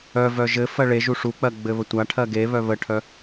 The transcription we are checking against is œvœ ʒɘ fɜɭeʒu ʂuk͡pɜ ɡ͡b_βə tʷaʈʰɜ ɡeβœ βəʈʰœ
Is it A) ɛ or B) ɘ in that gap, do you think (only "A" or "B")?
B